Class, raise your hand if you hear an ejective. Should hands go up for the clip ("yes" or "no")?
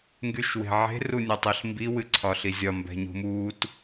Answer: no